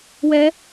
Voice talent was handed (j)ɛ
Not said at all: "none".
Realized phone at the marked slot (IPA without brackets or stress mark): w